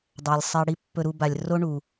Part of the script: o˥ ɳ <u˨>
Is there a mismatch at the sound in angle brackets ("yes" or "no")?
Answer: yes